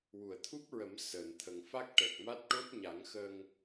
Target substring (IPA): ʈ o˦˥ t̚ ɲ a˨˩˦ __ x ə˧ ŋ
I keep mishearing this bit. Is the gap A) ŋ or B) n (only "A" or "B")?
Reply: A